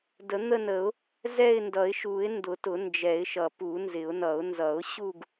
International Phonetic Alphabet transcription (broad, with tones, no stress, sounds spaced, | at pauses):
d ə˨˩˦ n̪ ə˥˧ n ə˨˩˦ ʊ̯ | z ɛ˥˧ ɪ̯ n d ʌ˨˩˦ ɪ̯ ʃ u˨˩˦ ɪ̯ n d ʊ˨˩˦ t ʊ˨˩˦ n d͡ʒ ɛ˨˩˦ ɪ̯ ʃ ʌ˨˩˦ p u˨˩˦ n z ɪ˨˩˦ ʊ̯ n ʌ˨˩˦ ʊ̯ n z ʌ˨˩˦ ʊ̯ ɕ u˥˧ ɡ